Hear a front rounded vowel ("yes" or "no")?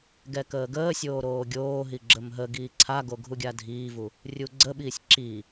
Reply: no